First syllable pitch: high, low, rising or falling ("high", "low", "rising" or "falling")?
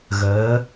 rising